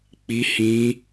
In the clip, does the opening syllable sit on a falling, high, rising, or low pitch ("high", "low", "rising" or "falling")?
high